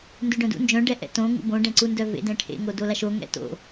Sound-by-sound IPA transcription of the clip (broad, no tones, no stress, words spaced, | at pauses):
ndʉɖœ̃dṵ nd͡ʒœ̃ ɖɛʔɛ̰tõ ŋṵbõ ɖɛ̃ǀundœvḛd ɛ̃ʈʰḛ ŋodolaʃo ŋɛ̰to̰